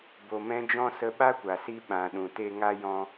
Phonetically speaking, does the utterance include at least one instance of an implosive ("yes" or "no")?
yes